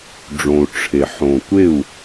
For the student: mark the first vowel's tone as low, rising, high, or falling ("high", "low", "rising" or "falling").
low